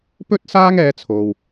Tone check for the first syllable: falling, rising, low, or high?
high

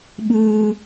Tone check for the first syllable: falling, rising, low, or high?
high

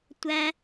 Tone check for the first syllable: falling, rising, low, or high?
high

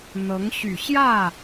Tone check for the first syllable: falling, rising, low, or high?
rising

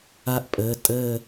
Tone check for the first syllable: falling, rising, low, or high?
falling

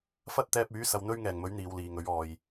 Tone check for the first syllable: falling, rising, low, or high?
high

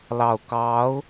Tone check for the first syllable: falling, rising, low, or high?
low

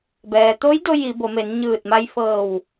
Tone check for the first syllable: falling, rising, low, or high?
low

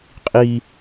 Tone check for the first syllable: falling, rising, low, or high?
high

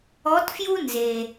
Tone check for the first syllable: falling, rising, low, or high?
rising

